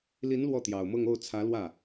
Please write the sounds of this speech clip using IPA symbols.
l i˧˥ n l w ɔ˥˩ t̪ j ɑ˨˩ ʊ̯ m ɤ˥˧ ŋ o˥˩ ʊ̯ t͡sʰ ä˧˥ l w ä˥˩

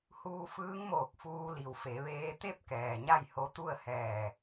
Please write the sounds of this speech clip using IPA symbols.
h uː˧ f ɯː˧˥ ŋ m oː˧˩ k̚ f uː˧ l i˩ w f e˩˧ ʋ eː˧ t̪ e˥˨ p̚ k ɛː˩ ɲ a˥˨ j h o˧˥ t̪ u˥˨ ə̯ h ɛː˧˩

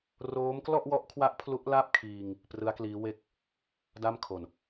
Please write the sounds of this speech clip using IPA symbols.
r oː˦˥ m k l ɔ˥˩ ʔ w ɔ˦˥ ʔ kʰ w a˦˥ ʔ pʰ l u˦˥ ʔ l a˥˩ p̚ kʰ iː˧ ŋ | p r ɯ˦˥ a̯ k l iː˦˥ w e˥˩ k̚ | d a˥˩ m kʰ o˨˩ n

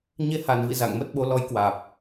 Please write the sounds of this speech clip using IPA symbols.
ɲ e˧ h a˨˩ n v ḭ˧˨ z a̰˧˨ ŋ m ə˦˥ t̚ ɓ o˨˦ l ɔ˨˦ j k w aː˨˩ p̚

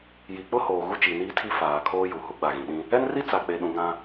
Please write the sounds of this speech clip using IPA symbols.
j i˨ k͡p ʊ˦ h oː˨ ɣ u˦ t͡ʃ i˨ n iː˦ tʰ i˦ f aː˨ kʰ oː˦ j u˨ h u˦ ɡ͡b a˨ ɣ ĩ˨ ɗ ĩ˦ | ɛ˦ n r i˦ t͡s a˨ k͡p e˨ ɗ ũ˨ ŋ ã˦

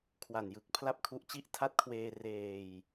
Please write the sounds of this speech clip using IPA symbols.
kʰ w a˨˩ n j ɯ˨˩ k̚ pʰ l a˥˩ p̚ kʰ u˦˥ ʔ t͡ɕ i˥˩ ʔ tʰ a˦˥ t̚ kʰ w eː˧ r eː˧ j

